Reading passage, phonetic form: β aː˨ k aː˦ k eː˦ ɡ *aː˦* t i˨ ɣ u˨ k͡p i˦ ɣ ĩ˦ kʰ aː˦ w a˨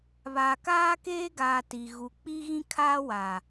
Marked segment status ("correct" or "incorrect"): incorrect